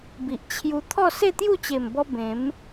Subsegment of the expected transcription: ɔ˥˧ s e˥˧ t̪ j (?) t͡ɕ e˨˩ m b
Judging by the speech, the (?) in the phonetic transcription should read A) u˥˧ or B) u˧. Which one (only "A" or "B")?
A